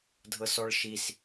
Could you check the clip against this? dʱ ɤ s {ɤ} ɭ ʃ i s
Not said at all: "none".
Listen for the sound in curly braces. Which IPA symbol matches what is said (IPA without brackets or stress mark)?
ɔ